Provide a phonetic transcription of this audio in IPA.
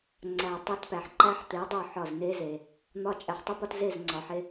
ŋ͡ǀ æ˨ tˤ æ˦ t p æ˨ ħ ǃ æ˦ ħ t̪ e˨˦ dˤ o˦˨ ħ ɒ˦˨ z n e˦ z e˨ | n̪ ɒ˦ t͡ʃʼ æ˨ ħ tˤ u˦ p ɒ˦ t z e˦˨ z ŋ͡ǀ ɒ˨ ħ e˦

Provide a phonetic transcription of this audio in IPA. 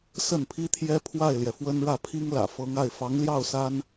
s ə˥˩ n pʰ i˥ t̪ʰ j ɛ˥ pʰ w a˥˩ ɪ̯ l j ɛ˩ f w ə˥ n ɻ ä˥˩ pʰ i˥ ŋ l ä̰˨˩ f ɤ˧˥ ŋ a˥˩ ɪ̯ f ɑ˧˥ ŋ l j ɑ˥˩ ʊ̯ s a˥ n

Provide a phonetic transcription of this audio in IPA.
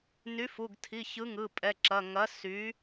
n y˨˥ f u˩˧˩ ɡ tʰ i˩˧˩ ç ɯ˨˥ ŋ ɯ˩˧˩ pʼ ɛ˩˧˩ ǁ ɐ˩˧˩ ŋ ɐ˨˥ s y˨˥

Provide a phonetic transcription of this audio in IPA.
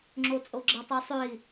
ŋ͡ǁ o t͡sʼ o ɡ͡ǁ ə tˤ o sˤ ø i̯

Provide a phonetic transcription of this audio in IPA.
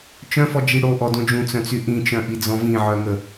t͡ʃ œ̃ f ɔ d͡ʒ i ɽ o ʔ ɔ d õ d͡ʒ ũ t͡s œ̃ t͡s y ʔ ĩ t͡ʃ œ̃ ʔ i d͡z ɔ̃ v ĩ ʕ œ ŋ ə

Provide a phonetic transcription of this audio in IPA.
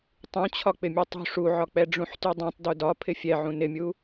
tˤ ũ t͡ɕʰ ɒ k͡p ɪ mʲ u tˤ ṳ ʂ u ʕ ɒ k͡p ɛ ɖ͡ʐ ũ ħ t y dˤ ũ tˤ d u d ɒ pʰ ɪ fʲ ɛ ʕ ũ n ɪ mʲ u

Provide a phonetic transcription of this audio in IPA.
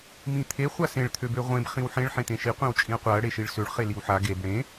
m ĩ t̪ʰ e χʷ a s ẽ ɭ t̪ʰ ø b ø ʁʷ ẽ b χ ĩ w ħ ẽ ɭ ħ ẽ t̪ ẽ ʃ i qʷ ẽ w t͡ʃʼ ĩ ɐ̯ qʷ a ɐ̯ ɽ e ʃ i ɭ s ø ɭ χ e l i w ħ a ɡ e b ɽ ẽ

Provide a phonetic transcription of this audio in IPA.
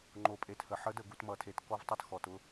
ŋ͡ǃ o˨ pʼ e˨ t h ə˨ ħ ə˨˦ d ə˨ ɡ u˨ t m ʌ˨ tʰ e˨ t k ɔ˦ v tˤ ʌ˦ t x ɔ˨ t ʊ˦

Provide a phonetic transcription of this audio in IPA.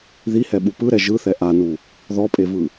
ð i h ɛ ɓ u p ɯ ɾ ɛ ʒ ɯ θ ɛ ʔ a n u | ð ɔ pʼ e v ɯ

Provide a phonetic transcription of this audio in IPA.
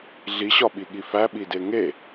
ɮ i ɕ ɒ ɓ i ɠ i f æ ɓ i d e ŋ e

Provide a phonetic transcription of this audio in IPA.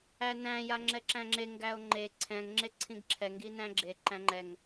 æ n æ̃ j a ŋ͡ǁ ɛ ǁ æ̃ ŋ͡ǁ e ŋ ɡ æ o̯ ŋ͡ǃ e ǀʰ ɛ̃ ŋ ŋ͡ǁ e ǀʰ ĩ ɡ ǁʰ ɛ ŋ ɡ i n æ̃ ɡ͡ǁ e ǃ æ̃ ŋ͡ǃ ɛ ŋ

